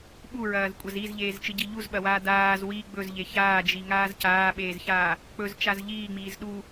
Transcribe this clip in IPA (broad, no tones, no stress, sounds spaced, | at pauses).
ɓ u ɹ ɐː z kʷʼ ɐ z i z ʎ eː z t͡ʃ ɨ ɟ i ʎ u z ɓ ɐ w aː d aː z w i ɡ͡b ɵ z ʎ e ç aː d͡ʒ i ŋ aː z c aː ɓ eː z ç aː | k͡p ɵ z t͡ʃ a z ʎ iː ŋ͡m iː z ɗ u